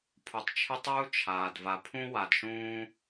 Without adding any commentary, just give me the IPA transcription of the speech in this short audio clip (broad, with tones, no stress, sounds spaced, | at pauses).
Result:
pʰ u˩ tˤ t͡ʃʰ ɨ˦ tˤ uː˥ t͡ʃʰ aː˩ d v a˨ pʰ ũ˥ w a˨ d ʃ ũː˦